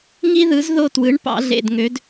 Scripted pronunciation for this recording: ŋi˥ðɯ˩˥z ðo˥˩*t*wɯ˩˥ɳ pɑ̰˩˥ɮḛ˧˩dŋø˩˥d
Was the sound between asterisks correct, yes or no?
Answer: yes